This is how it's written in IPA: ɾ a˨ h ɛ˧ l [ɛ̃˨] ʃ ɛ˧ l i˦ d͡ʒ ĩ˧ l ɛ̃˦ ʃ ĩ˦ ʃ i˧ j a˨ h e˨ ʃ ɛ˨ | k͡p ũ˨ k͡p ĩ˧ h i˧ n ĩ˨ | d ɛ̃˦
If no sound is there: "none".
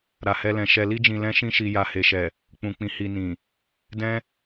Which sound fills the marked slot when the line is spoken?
ɛ̃˨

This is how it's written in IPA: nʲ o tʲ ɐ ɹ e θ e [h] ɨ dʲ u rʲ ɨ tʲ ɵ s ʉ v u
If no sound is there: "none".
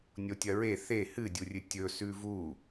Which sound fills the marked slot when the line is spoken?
h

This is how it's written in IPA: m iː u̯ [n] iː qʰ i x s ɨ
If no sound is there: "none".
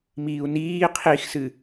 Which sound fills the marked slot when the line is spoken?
n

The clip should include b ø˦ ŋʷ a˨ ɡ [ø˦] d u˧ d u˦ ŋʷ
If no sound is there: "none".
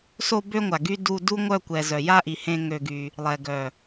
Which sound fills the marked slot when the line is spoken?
y˦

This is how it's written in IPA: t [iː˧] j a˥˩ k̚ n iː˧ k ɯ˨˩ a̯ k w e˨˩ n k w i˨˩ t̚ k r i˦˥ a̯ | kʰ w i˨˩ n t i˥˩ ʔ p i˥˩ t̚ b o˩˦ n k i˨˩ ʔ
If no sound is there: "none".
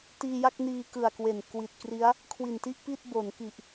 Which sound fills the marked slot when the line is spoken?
iː˧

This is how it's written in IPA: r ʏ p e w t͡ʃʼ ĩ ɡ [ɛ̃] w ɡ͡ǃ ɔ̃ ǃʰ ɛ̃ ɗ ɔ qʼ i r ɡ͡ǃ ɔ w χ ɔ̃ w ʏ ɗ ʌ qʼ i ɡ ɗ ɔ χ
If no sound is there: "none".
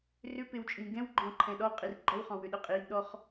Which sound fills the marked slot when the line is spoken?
ɛ̃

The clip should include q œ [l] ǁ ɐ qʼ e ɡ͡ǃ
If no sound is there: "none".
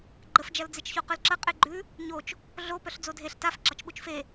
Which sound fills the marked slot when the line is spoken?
l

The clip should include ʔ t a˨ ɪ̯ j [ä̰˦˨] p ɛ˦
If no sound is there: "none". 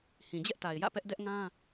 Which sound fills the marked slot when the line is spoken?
ä̰˦˨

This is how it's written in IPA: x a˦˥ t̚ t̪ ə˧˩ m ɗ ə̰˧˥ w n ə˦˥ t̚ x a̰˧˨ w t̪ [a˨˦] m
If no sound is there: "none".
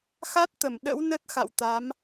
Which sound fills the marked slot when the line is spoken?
a˨˦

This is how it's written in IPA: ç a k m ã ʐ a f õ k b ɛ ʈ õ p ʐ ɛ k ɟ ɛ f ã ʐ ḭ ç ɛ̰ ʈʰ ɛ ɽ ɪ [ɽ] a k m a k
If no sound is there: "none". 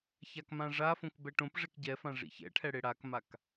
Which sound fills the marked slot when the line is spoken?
ɽ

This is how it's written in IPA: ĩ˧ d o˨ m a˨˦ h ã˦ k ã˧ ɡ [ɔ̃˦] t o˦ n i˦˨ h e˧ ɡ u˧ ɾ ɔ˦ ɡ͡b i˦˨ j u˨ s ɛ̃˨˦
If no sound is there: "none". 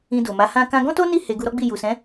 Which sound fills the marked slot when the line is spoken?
ɔ̃˦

